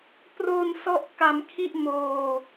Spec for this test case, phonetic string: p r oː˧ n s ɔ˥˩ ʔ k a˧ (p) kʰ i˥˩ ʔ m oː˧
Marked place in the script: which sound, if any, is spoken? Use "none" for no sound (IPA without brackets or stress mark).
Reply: m